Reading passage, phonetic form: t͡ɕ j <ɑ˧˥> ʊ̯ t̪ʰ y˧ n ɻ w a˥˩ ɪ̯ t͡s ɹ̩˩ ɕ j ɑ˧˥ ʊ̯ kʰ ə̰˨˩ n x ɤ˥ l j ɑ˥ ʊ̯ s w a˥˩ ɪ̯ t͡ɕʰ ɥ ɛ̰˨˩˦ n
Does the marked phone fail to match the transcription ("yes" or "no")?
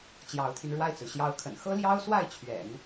no